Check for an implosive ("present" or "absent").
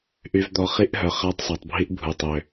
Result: absent